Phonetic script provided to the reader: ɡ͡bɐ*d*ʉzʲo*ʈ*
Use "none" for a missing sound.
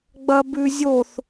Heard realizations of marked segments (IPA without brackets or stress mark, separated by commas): b, θ